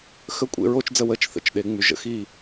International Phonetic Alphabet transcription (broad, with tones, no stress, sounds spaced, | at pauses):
x ə˥˩ kʷʼ ḛ˥˧ ɹ o˥˧ t͡ʃ d͡z ə˥˩ w ə˥˩ t͡ʃ θ ə̰˥˩ t͡ʃ ɗ e˨˩˦ ŋ͡m y˨˩˦ ʒ ə̰˧˥˧ x i˥˩